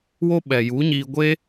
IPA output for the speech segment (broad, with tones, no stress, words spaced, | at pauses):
wo˦ɓɛ˨ ju˨˦ɲiː˧ɡʷe˦